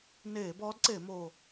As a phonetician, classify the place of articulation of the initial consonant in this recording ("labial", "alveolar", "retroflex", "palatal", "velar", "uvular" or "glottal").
alveolar